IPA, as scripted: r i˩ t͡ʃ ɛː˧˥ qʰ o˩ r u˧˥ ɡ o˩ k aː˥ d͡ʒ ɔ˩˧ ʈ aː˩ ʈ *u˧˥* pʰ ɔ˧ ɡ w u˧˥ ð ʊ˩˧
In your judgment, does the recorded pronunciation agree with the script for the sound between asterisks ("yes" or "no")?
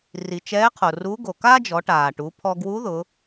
no